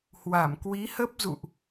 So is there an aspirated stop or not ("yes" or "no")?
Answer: no